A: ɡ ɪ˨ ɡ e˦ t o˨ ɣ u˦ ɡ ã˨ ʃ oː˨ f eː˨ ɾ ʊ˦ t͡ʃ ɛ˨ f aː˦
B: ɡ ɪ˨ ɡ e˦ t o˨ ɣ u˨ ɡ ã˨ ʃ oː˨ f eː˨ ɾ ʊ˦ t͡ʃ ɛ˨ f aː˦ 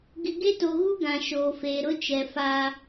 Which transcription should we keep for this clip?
A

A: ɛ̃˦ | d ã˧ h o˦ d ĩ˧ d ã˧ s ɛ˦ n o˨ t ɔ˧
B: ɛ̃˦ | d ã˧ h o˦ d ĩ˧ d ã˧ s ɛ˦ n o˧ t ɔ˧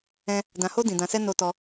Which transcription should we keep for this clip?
B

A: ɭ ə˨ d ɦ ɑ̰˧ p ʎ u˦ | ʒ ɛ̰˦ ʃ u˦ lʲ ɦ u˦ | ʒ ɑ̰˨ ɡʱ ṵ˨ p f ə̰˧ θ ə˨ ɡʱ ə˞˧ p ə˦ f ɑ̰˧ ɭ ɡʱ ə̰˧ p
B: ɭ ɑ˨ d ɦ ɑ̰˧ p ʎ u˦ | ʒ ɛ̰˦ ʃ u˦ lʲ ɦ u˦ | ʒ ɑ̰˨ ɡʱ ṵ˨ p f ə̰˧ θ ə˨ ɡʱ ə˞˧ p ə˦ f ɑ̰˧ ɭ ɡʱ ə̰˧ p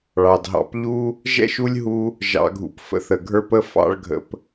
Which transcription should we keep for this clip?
B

